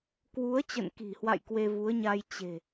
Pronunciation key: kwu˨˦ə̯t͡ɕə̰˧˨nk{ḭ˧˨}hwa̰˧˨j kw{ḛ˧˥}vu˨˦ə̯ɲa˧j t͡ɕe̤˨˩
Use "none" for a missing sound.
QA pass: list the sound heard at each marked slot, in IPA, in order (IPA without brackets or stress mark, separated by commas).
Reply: i̤˨˩, e˧